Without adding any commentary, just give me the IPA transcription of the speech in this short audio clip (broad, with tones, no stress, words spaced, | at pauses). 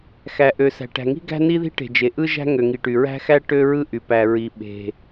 xæ˩ ʔø˩sæ̤˩ ʈæ̤˩ŋi̤˥ ɡæ̤˥ni˥ði̤˥ʈe̤˩ d͡ʒe˩ʔɯ˥ʒæ̤˥ ŋø˩ŋi˩ʈy˩ ɹæ̤˥xæ˥ ʈø˥ɹɯ˥ʔy˩ pæ˩ ɹi˩ ɓe̤˩